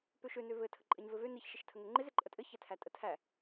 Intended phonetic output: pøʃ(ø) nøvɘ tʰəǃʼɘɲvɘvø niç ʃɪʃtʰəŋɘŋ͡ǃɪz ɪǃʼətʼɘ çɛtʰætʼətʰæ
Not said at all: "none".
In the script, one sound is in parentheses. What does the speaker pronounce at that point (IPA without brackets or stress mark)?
ø